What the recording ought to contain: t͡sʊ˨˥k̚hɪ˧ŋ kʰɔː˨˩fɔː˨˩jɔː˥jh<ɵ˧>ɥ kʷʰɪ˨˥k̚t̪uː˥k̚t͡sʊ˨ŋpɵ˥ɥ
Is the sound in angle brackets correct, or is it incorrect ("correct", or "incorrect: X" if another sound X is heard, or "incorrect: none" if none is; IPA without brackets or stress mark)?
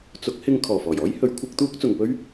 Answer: incorrect: ɵ˨˥